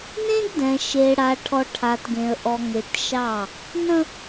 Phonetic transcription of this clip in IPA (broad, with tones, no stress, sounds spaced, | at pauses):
n ẽ˦ ɡ d ɛ̃˨ ʃ e˨ ɽ a˨ ʈʰ ɔ˨ ʈʰ a˨ t ɡ ẽ˨ ə̯ ʔ ɔ˨ ŋ e˨ t ʃ ɑ˦˨ | n ə̃˦